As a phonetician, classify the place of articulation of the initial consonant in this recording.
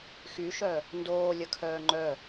velar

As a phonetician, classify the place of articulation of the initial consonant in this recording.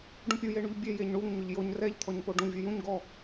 retroflex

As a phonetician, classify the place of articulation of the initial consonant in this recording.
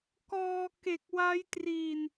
velar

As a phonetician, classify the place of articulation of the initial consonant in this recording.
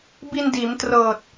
labial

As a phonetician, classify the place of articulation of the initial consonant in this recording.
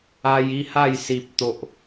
palatal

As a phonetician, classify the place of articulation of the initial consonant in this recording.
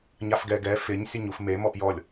palatal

